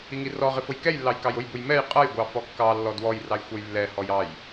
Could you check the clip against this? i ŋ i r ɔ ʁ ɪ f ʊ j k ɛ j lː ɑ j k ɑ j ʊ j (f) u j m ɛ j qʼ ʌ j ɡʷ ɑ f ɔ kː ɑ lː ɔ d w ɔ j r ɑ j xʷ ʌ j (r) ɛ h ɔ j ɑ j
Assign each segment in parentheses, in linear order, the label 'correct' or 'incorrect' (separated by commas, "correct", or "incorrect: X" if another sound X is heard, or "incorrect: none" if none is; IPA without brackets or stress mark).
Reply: incorrect: b, incorrect: lː